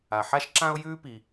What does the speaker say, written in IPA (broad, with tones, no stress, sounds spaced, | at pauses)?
a˩ ħ a˦ ʃ ǁ ã˦ ʊ̯ j ʉː˦ p i˩